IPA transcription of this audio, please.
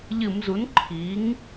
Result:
ʎ ɨ˧˩˧ m z u˩˥ n ǃʰ i˩˧ ŋ

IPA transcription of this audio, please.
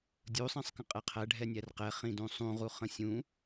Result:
dʲ u sˤ ɛ̃ sˤ k ə̃ qʼ ɛ qʰ æ ɖʱ ɛ nʲ æ r q ɛ χ ĩ d ũ sˤ ũ ʁ u χ ə̃ sʲ ũ

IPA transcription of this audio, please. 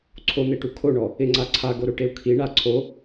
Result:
ǀʰ o n̪ e ʈ u kʰ o ɳ ɔ | ɪ ŋ͡ǀ a ǀʰ a ɡ o ɾ o ʈ e u̯ kʰ i ɳ a ǀʰ o

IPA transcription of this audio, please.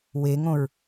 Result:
w e ŋ õ ɹ

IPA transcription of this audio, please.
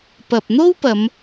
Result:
p ɐ˨ p̚ n̪ o˥ w p ɐ˨˧ m

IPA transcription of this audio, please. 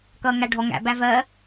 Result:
k ʌː ŋ æ ɖʱ ɔ ŋ æ̰ b æ v ɜ

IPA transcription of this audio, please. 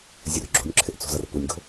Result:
zʲ ɵ r ɡ͡ǁ o̤ nʲ ǁʰ ɪ ʔ t͡s o̤ z ʌ r p u nʲ ɡ o̤

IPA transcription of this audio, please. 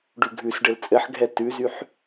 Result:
ɖ ʉ ɡʱ ʉ s ɖ ɘ l t͡sʼ ɘ ħ ɡʱ ɛ t ʉ z y ħ

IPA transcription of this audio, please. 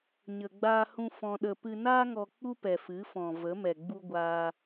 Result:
ɲ ə˧ ɡ͡b aː˦ h ũ˦ f ɔ̃˧ ɗ ə˧ p ɨ˧ n aː˦ ŋ ɔ˧ k͡p u˦ p ɛ˨ f ɨ˨˦ f ɔ̃˨ v ə˨˦ m ɛ˨ ɡ͡b u˧ ɡʷ aː˧

